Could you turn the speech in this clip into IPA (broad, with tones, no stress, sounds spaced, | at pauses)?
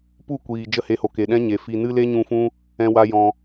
p u˦˨ kʷ iː˨ d͡ʒ ə˦˨ h e˧ h o˨ k e˨ ɗ ɛ̃˦ ɲ e˨ f i˨ n ɨ˧ l e˦ ɲ ũ˧ f ũ˦ | ɛ̃˧ w a˧ j ɔ̃˧